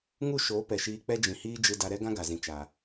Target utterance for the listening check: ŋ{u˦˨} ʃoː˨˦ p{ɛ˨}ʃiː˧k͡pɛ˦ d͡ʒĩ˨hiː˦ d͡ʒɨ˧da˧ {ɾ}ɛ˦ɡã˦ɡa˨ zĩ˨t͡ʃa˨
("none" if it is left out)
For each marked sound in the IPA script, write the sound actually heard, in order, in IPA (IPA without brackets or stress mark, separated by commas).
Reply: u˦˨, ɛ˨, ɾ